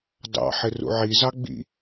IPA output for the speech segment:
dɑ̰ħɪ rṵʕizɑ ɡ͡bḭ

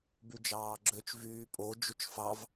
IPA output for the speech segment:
byd͡ʒɑːɡ͡ǁøt͡ʃ vyːpʼo d͡ʒut͡ʃfɑv

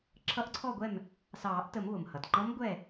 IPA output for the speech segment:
ǁʰʌ˧˥ʔǀʰɔ˥˨ɡʷɛ˥˨m | sɑː˨˩˦ʔtə˨˩˦m βʊ˩mhʌ˩t ŋ͡ǃʌ˧˥m ɡʷɛ˥˨

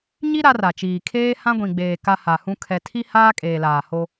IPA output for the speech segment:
ɲi˦ ɾa˦ra˨t͡ʃiː˨ kʰeː˦ hã˦ ɡʷĩ˨ɡ͡beː˨ ka˦ha˨hũ˦ kʰɛ˨tʰi˦ haː˦kʼeː˨laː˨ ho˦

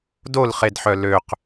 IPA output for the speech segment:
dolχedħœ løq

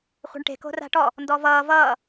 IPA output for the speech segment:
χʷɛ̤ɳʈe̤ ko̤ra̤ʈɔ | ndɔvʌː vʌː

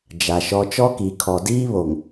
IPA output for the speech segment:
d͡ʒa˨ʃɔ˦ t͡ʃɔ˦ki˨kʰɔ˨ diː˦βo˨ŋ

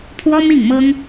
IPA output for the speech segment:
pʰwɔ˥mi˥˩ŋmɤ˥ŋ

